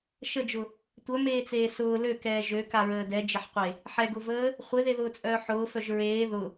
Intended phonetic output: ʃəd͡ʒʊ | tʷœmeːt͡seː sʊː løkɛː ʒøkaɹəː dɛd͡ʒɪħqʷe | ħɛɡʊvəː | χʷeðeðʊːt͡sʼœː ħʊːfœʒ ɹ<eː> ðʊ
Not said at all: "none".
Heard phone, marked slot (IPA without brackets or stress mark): eː